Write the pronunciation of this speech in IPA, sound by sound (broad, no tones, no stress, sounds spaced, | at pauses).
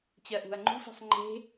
t͡ɕ ɜ ʔ ṳ ɐ̯ ŋ͡ǃ ṳ f i̤ sˤ ŋ͡ǃ e̤